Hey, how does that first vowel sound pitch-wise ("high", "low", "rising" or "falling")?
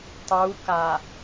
rising